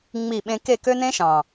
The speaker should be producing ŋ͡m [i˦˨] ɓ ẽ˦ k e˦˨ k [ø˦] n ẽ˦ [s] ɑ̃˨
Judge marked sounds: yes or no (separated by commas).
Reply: yes, yes, no